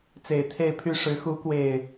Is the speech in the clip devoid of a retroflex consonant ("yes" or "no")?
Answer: no